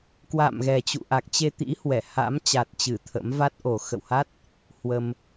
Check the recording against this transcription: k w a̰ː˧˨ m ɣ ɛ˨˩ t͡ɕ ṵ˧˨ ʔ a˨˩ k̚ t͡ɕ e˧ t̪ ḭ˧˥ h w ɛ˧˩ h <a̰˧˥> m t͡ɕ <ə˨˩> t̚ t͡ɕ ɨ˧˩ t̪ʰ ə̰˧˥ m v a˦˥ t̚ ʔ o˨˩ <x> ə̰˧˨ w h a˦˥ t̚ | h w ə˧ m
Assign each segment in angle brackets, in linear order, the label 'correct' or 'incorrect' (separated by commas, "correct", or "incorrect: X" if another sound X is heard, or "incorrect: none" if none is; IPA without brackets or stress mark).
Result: correct, incorrect: a˨˩, correct